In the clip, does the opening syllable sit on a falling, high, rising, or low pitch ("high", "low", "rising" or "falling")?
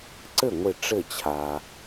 falling